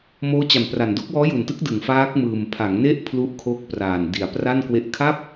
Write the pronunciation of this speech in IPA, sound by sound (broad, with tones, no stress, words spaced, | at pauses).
moː˦˥t͡ɕa˨˩mpra˨˩n do˦˥k̚wɔː˦˥ju˨˩ntɯ˦˥k̚ dɯ˨˩ŋfaː˦˥k̚mɯː˨˩m pʰa˩˦ŋ ne˥˩ʔ pʰlu˦˥ʔkʰo˦˥k̚praː˨˩n di˩˦a̯pra˥˩nkwe˦˥ʔ kʰa˥˩p̚